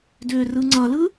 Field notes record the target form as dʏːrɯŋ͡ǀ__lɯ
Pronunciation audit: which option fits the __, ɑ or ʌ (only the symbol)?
ʌ